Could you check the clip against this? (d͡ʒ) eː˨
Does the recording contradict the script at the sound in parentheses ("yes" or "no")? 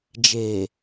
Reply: no